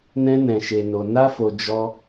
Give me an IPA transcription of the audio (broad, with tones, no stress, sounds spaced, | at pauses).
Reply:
n ɛ̃˧ n ɛ̃˨ ʃ e˨ n o˨ n a˧ f o˨ d͡ʒ ɔ˧